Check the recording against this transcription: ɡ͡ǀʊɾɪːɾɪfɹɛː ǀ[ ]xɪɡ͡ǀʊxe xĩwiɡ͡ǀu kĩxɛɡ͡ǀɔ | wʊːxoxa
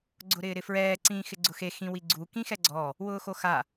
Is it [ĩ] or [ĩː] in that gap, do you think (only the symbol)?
ĩː